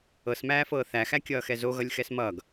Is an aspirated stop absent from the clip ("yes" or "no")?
yes